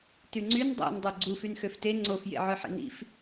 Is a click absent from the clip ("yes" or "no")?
no